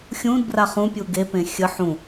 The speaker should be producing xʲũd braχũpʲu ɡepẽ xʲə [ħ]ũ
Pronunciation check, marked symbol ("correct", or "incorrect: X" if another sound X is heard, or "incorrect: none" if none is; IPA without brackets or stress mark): correct